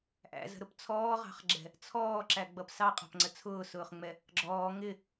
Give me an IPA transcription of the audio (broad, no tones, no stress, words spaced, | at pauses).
ʔæ̰zə̤ɾʊp t͡sʰɔːʁɑ̤χɡ͡ǁɛ̤ | t͡sʰɔːǁæɡ͡bʌp sɑqʼɑ̤pŋ͡ǀə t͡sʰʊːsʊːχŋ͡mɛ | ɡ͡ǁɔː ŋɪ